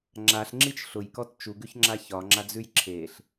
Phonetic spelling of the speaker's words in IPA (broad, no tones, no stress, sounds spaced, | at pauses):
ŋ͡ǁ a ɬ ŋ͡ǁ i t͡ʃ ɬ ʊ j k ɔ t t͡ʃ u ɡ ʉ ç ŋ͡ǁ a ç ɒ ŋ͡ǁ a d͡z ʉ j ǁʰ e ɬ